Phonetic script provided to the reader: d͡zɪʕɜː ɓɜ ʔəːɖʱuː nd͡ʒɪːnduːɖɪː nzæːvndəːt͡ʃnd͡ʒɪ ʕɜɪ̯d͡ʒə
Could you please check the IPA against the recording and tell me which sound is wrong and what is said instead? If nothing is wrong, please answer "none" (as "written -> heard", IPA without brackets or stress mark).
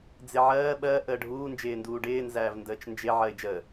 none